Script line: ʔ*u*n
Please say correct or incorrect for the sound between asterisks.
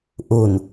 correct